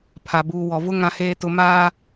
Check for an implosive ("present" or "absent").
absent